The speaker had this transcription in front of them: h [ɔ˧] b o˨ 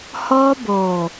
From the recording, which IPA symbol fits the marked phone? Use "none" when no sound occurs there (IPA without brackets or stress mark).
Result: ɔ˧